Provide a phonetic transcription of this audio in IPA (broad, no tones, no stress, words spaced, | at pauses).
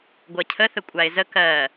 ɡʷɜcʰəθə kʷʼaɪ̯zə kɜ